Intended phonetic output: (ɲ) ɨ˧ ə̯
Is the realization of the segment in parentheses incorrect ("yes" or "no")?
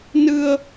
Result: yes